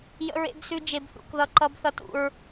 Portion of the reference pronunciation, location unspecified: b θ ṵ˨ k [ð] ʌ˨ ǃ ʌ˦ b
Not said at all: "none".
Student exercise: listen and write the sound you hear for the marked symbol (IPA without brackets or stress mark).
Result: ð